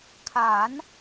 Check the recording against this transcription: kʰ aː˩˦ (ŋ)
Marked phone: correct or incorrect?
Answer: incorrect